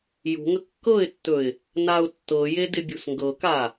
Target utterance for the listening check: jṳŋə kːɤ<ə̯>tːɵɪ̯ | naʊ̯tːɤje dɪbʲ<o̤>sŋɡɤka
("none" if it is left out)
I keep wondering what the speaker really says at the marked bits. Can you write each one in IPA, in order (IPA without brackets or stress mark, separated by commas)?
ɪ̯, ṳ